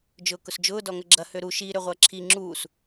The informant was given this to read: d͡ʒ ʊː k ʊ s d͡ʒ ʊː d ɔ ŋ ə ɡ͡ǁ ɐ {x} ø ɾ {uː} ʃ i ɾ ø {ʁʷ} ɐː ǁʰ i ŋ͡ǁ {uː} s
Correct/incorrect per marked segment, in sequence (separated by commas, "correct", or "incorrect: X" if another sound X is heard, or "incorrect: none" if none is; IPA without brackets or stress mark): incorrect: h, incorrect: u, correct, correct